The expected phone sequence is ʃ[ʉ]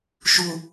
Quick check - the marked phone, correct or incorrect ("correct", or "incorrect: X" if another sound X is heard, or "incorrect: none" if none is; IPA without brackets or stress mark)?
incorrect: u